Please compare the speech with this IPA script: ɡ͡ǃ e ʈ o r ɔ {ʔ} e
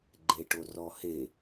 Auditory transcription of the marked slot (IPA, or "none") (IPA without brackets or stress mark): h